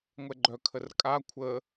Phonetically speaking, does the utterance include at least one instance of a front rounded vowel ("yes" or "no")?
yes